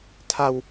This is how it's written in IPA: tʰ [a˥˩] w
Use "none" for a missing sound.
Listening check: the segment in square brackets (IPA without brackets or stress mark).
a˧